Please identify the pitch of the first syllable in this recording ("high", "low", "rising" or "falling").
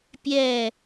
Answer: falling